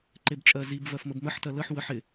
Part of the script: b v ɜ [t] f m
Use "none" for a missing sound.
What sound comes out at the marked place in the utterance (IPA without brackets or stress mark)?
none